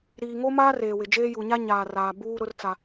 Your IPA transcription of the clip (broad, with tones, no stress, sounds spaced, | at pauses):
ɾ iː˨ ŋ o˦ m aː˦ r eː˨ w ɪ˨ d͡ʒ eː˦ j u˨ ɲ a˦ ɲ aː˨ r aː˨ b uː˦ ɾ ʊ˦ r t͡s a˦